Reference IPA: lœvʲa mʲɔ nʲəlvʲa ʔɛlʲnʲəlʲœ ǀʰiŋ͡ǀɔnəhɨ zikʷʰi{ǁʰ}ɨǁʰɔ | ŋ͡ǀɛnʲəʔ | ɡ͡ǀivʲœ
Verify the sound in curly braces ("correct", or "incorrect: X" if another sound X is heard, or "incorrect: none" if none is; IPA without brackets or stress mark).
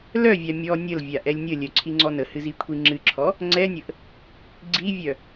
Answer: incorrect: ŋ͡ǁ